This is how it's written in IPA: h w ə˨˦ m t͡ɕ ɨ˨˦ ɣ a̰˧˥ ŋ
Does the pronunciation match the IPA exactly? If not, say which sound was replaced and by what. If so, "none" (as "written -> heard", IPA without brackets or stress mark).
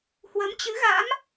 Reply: ŋ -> m